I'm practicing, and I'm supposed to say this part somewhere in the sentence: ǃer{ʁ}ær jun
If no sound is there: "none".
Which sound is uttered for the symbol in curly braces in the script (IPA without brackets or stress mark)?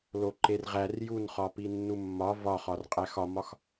ʁ